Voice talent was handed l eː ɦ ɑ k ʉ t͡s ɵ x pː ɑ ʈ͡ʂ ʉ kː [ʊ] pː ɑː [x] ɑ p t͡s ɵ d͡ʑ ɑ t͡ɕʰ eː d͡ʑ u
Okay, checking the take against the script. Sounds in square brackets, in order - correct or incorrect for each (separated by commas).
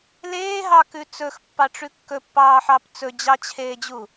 incorrect, incorrect